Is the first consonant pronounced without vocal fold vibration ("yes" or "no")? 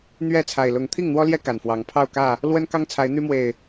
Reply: no